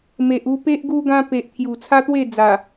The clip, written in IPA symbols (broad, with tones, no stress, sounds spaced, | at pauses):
m e˨ ʔ u˧ p e˦ ʔ ɡ u˧ ɡ ã˧ p e˨ ʔ t̪ʰ j u˨˩ t͡sʰ a˦ t̪ w e˥˧ d͡z a˨˩